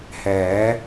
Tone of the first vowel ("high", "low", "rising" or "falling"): rising